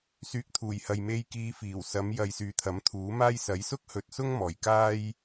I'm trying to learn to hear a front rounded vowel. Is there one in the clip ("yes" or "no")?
yes